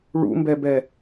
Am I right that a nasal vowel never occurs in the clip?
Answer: yes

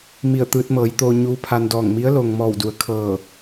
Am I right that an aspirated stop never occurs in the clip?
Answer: no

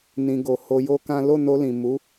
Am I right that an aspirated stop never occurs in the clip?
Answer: yes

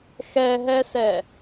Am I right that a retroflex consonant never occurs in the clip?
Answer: yes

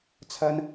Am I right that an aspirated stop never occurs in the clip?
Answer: no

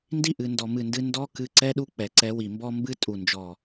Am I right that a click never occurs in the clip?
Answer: no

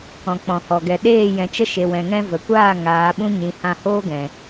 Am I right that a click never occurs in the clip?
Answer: yes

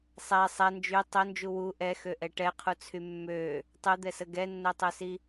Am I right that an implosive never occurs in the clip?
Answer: yes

